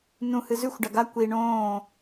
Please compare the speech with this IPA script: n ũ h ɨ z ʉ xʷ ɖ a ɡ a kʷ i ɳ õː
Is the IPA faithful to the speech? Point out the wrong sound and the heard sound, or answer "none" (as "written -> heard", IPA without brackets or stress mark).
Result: none